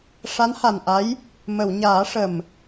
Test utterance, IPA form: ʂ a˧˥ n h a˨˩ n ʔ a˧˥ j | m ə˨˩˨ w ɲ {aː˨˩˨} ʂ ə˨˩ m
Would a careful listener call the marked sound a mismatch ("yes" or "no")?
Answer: yes